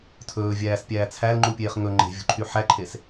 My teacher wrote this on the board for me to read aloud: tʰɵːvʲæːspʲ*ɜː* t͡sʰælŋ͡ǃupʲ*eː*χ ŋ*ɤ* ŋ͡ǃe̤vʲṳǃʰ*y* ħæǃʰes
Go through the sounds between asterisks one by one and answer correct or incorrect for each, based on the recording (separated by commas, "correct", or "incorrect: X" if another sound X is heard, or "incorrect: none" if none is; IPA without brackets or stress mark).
incorrect: æː, correct, incorrect: ɵ, correct